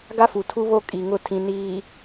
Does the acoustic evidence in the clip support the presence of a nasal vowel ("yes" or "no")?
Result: yes